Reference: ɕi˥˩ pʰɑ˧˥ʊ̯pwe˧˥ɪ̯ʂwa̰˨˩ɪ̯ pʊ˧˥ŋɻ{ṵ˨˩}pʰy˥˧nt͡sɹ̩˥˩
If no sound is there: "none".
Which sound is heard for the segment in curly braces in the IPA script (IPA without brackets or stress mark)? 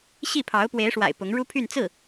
u˥